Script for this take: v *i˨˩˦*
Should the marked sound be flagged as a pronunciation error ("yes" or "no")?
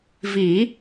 no